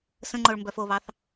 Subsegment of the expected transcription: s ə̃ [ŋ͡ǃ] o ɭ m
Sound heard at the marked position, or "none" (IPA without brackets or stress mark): ŋ͡ǃ